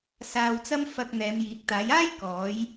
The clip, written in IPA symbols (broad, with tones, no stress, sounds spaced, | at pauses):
s aː˧ w t͡s ɐ˥ m f ɐ˧ k̚ n̪ ɛː˨˧ m j iː˨˥ k̚ t̪ aː˨˥ j aː˥ j k ɔː˨˥ j